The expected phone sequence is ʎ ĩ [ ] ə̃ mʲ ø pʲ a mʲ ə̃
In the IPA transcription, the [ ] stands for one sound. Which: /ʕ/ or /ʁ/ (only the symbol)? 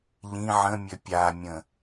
ʕ